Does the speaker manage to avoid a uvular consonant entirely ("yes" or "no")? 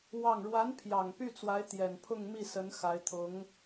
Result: yes